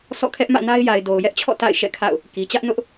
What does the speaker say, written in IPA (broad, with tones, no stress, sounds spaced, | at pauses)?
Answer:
s ɔ̰˦˨ kʰ ɛ˦ ʔ m ä̰˦˨ n a˦ ɪ̯ j a˨ ɪ̯ d o˨ ʊ̯ j ɛ˦ ʔ t͡ɕʰ ɔ̰˦˨ t a̰˦˨ ɪ̯ ʃ ɛ̰˦˨ kʰ a̰˦˨ ʊ̯ | k i˨ t͡ɕ ä˦ ʔ n ʊ˦ ʔ